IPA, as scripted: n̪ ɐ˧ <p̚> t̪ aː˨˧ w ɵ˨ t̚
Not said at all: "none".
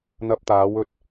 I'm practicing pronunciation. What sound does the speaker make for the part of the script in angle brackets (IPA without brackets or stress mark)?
p̚